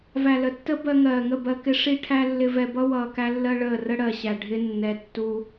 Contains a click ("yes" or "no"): no